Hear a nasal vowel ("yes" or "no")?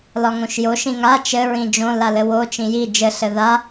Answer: yes